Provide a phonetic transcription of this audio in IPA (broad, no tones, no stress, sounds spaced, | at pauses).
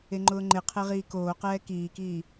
e ŋ͡ǃ ʊː ŋ͡ǃ e qʰ e ʁ iː k oː q ɛː k iː k iː